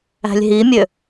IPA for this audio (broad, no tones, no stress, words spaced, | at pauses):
æ̤lʲɦimʲø